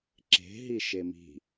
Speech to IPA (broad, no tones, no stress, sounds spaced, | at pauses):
ǁ e̤ ɦ i ʃ e m i̤